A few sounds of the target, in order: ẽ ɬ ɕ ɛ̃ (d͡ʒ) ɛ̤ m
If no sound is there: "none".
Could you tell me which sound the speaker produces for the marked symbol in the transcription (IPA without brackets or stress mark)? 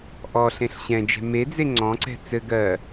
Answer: d͡ʒ